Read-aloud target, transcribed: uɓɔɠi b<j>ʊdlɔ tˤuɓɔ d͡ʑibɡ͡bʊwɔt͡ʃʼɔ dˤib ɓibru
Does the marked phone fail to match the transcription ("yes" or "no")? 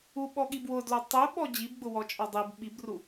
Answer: yes